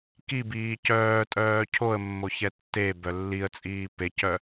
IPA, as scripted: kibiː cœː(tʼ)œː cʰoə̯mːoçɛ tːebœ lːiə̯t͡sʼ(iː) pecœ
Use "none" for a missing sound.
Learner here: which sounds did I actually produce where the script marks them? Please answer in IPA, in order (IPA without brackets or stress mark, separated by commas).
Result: tʼ, iː